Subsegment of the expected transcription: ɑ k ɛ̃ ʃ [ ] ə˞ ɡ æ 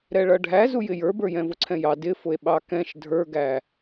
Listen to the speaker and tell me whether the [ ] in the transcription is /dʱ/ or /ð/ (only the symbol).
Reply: dʱ